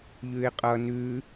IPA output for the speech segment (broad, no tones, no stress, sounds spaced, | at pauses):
ʎ ʉ e̯ qʼ ʌ n ʉ